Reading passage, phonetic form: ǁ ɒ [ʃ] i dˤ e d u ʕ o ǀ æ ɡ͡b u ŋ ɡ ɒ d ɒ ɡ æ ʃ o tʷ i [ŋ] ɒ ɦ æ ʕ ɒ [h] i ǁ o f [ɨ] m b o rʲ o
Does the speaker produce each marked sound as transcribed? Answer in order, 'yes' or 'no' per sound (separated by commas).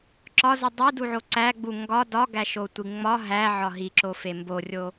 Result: no, no, no, no